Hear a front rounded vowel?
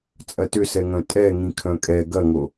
yes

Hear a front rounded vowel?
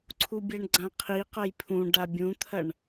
no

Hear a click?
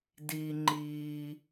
yes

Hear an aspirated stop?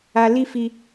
no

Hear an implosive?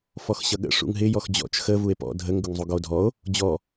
yes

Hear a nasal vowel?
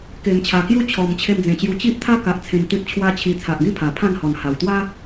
yes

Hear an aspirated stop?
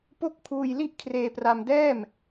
yes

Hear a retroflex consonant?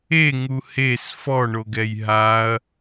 yes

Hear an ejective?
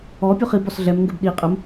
yes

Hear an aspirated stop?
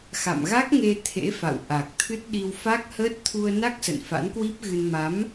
yes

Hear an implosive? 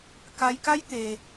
no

